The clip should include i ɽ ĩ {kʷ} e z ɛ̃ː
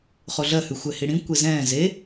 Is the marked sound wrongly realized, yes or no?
no